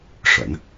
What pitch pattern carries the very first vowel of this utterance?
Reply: low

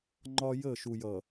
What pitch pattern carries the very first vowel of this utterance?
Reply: high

